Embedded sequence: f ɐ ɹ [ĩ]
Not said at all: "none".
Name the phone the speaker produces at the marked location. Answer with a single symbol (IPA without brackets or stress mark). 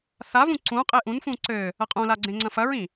ĩ